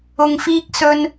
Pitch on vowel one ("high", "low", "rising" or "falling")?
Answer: low